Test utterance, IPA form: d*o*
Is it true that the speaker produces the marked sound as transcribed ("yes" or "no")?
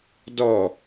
no